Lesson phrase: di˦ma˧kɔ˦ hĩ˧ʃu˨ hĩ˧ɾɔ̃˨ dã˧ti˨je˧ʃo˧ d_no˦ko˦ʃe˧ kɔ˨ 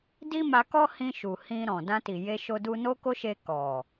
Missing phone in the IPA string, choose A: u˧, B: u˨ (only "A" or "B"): A